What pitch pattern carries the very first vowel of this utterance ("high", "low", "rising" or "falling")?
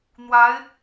rising